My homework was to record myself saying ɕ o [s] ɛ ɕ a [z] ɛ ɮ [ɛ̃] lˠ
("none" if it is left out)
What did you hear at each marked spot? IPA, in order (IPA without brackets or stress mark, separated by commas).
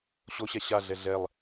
ɕ, ɮ, ɛ